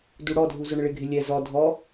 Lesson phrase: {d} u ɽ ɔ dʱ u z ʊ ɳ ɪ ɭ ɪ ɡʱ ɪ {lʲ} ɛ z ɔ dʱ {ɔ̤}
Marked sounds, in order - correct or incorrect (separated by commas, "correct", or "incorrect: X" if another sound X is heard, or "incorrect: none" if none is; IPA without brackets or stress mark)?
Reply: correct, correct, incorrect: ɔ